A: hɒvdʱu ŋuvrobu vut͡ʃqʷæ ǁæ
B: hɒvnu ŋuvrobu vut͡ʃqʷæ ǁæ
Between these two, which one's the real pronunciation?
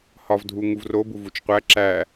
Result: A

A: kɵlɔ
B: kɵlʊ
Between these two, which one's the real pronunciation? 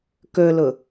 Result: B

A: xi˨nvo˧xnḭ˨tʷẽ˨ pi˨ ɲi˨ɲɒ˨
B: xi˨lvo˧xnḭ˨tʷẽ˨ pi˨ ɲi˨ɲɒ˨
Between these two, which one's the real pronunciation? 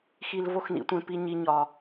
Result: B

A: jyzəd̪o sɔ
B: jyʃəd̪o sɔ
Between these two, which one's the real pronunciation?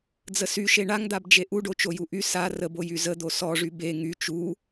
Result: A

